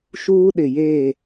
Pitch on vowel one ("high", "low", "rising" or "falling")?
high